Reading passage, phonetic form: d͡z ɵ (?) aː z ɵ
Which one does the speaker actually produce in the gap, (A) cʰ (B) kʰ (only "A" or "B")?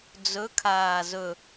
B